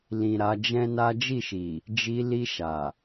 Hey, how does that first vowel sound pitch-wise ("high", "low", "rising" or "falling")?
low